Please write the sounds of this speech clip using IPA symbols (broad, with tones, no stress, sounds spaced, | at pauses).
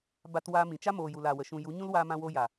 b a˧ t w aː˧ m ĩ˨ t͡ʃ a˦ m oː˨ j u˨ l a˨ w ə˨ ʃ ũ˨ j u˨˦ ɲ ũ˦ l w aː˧ m ã˧ w o˧ j a˨